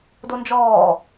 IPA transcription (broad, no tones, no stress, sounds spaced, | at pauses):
d o n d͡ʒ ɔː